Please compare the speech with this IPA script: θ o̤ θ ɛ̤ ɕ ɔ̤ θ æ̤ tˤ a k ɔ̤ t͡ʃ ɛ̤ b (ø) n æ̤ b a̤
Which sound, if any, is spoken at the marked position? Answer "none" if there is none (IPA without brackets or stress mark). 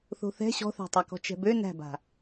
ø